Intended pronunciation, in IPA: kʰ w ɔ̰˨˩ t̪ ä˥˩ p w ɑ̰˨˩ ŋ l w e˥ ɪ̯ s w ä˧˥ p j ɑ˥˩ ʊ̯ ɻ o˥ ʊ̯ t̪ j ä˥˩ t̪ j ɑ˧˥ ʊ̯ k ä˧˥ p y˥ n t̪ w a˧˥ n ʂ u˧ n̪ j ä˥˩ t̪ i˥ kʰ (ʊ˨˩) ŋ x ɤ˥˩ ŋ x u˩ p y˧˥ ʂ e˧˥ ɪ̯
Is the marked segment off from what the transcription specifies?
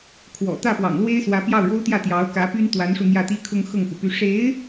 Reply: yes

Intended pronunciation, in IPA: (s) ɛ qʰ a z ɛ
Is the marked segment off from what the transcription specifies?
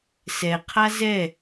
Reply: no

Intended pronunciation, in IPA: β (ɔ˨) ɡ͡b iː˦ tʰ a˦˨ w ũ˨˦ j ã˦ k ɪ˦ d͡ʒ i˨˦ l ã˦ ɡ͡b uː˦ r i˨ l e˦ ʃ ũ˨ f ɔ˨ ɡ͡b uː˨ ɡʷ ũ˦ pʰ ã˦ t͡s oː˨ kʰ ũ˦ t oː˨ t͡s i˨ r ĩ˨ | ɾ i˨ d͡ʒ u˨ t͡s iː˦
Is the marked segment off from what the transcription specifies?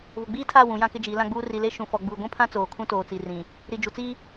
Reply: yes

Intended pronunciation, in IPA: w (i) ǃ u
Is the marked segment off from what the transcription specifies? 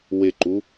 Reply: yes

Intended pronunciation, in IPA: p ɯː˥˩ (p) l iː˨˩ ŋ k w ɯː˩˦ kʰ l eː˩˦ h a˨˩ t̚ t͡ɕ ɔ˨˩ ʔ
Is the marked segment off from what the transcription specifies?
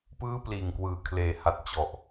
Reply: no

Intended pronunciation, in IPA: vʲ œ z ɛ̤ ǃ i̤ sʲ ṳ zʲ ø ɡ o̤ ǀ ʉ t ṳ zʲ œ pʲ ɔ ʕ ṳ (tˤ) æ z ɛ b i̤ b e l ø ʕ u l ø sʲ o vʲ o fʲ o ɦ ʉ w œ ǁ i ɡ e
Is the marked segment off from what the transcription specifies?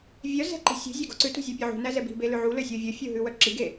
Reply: yes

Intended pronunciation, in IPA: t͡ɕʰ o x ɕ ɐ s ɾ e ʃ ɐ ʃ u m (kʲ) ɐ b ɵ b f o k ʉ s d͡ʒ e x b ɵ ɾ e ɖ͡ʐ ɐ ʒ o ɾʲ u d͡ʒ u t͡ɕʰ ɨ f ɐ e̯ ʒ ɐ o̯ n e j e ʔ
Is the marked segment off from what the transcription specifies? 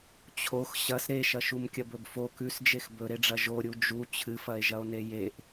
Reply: no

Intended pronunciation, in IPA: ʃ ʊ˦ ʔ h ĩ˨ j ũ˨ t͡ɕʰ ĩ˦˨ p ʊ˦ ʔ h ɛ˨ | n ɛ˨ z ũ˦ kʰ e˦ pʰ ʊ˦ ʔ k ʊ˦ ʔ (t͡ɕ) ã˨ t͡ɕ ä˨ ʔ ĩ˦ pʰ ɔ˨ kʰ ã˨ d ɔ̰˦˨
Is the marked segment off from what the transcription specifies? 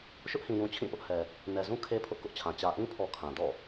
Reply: yes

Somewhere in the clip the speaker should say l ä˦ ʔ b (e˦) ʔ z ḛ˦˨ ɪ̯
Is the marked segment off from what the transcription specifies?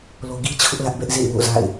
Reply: yes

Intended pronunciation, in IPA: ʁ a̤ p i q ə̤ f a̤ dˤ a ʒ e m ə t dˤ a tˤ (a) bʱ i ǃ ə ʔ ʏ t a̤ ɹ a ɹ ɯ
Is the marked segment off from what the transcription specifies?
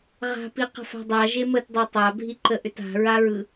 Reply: no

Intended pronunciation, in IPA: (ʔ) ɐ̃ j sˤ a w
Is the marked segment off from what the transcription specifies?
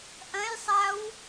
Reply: no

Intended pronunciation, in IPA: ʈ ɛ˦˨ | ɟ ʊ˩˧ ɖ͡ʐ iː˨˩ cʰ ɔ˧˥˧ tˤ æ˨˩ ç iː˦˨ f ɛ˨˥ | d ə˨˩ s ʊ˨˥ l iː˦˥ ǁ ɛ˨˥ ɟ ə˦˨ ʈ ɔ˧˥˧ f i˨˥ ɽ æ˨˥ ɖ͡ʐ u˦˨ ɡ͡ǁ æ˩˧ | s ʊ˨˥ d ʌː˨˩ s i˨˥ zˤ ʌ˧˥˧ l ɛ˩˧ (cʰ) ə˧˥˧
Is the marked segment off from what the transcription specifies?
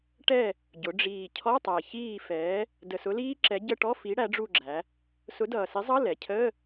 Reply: no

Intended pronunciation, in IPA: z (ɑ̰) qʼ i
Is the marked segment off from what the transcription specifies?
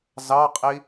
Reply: yes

